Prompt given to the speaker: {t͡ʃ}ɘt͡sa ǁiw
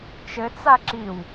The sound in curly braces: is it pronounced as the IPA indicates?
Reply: yes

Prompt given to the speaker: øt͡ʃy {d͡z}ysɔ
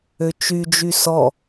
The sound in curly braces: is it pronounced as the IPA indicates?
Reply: no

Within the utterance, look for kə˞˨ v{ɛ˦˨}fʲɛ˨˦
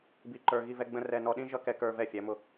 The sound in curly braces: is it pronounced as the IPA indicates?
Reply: yes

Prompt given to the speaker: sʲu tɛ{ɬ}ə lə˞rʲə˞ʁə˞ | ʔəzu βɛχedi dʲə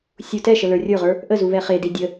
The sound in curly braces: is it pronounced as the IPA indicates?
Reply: no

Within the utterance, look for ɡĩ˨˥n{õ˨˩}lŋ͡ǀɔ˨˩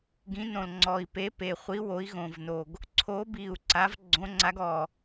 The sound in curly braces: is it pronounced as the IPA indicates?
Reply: yes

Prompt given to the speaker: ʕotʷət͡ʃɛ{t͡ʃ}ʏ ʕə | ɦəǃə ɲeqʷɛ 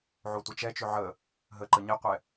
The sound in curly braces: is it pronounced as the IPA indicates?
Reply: yes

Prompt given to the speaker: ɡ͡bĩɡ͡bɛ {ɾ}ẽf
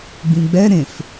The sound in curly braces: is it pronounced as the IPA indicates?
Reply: yes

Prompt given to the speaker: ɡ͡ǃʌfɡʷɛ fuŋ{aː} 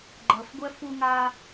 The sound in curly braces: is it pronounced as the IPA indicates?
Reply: yes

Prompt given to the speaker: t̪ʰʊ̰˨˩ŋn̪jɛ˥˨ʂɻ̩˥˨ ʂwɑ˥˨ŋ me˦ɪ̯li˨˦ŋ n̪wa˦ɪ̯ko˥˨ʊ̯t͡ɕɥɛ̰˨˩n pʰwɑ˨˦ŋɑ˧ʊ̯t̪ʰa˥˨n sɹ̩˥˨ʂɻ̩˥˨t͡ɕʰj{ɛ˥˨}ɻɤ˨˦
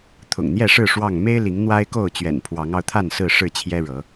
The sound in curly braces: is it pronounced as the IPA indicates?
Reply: no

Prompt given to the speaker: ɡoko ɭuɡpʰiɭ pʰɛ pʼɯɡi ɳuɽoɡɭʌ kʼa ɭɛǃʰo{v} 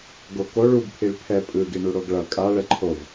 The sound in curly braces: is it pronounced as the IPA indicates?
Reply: yes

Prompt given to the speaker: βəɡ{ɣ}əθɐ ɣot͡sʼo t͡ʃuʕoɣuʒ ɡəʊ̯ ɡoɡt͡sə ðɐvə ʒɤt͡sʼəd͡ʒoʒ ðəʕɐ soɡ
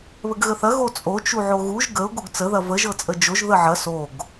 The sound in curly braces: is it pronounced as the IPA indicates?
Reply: yes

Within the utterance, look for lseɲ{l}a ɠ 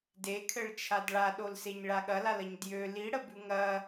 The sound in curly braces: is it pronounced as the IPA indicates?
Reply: no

